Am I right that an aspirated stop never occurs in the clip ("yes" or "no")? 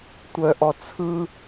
no